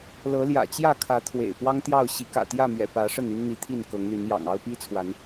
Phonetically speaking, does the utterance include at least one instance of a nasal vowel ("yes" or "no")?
no